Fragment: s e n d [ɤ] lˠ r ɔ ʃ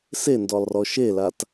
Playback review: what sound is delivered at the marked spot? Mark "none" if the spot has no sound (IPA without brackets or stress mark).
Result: ɔ